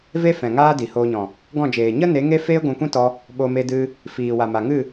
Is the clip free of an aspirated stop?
yes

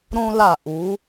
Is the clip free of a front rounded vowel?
yes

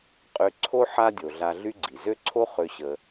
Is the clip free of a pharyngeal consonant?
no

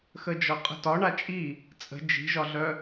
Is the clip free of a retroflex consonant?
no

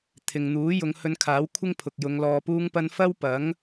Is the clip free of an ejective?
yes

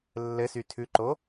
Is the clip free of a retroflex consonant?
yes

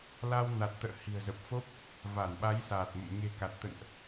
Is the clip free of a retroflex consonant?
yes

